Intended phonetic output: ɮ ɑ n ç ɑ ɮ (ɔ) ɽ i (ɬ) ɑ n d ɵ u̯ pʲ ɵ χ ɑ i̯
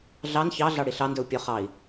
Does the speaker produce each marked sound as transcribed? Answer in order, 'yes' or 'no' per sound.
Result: no, yes

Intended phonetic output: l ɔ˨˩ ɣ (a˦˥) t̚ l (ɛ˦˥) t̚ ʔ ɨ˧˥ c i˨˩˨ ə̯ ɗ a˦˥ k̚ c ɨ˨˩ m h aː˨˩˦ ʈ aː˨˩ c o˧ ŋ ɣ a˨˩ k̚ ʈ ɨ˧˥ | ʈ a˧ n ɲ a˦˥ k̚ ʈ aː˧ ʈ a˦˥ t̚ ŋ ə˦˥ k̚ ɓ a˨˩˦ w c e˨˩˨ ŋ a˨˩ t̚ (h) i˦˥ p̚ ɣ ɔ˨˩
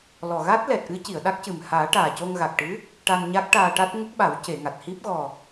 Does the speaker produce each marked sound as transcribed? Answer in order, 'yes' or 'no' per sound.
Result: yes, no, yes

